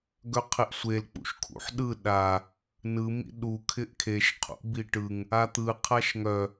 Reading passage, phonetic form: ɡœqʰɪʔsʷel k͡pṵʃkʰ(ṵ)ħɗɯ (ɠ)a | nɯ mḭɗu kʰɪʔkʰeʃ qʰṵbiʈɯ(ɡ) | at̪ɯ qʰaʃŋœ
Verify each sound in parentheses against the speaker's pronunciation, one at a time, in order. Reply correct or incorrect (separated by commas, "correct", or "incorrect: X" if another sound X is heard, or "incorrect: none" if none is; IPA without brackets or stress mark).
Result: correct, incorrect: ɗ, incorrect: ŋ